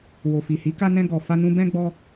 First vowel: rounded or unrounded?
rounded